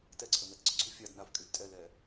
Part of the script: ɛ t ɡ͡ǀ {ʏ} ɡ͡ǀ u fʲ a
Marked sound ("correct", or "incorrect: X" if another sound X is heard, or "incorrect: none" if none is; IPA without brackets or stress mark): correct